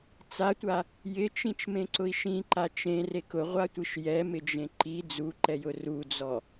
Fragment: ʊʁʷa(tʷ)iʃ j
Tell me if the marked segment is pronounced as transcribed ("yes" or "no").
yes